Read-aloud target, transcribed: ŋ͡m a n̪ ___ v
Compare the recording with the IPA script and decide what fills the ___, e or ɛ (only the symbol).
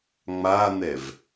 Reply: ɛ